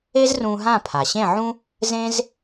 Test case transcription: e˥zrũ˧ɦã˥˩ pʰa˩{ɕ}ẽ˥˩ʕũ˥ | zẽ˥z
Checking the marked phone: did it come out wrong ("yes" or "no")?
no